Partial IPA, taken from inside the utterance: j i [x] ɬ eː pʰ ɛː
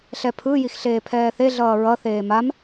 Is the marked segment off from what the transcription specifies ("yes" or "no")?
no